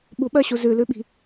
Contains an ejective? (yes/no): no